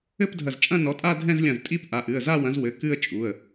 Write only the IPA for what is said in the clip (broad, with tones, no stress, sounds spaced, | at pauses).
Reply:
ɘ˥˧ p dʱ ɐ˧˩ z t͡ʃʼ ɐ̃˥˧ n ɔ˨˥ tʼ a˥˧ dʱ ɛ̃˥˧ z lʲ ɐ̃˧˩ z tʼ i˥˧ p ʔ a˩˧˩ ʔ ɨ˩˧˩ ə̯ z a˥˧ w ɐ̃˨˥ z w ɘ˩˧˩ k ɨ˥˧ ə̯ t͡ʃʼ u˩˧˩ ə̯